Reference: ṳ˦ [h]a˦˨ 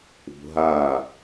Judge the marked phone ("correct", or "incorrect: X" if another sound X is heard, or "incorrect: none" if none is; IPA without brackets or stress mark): incorrect: ɦ